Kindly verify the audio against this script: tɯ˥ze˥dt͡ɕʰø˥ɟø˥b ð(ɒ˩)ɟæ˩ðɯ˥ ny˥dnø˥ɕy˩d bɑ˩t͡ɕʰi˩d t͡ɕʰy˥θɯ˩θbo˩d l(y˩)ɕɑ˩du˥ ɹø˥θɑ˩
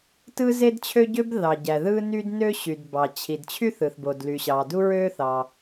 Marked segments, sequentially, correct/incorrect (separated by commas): incorrect, correct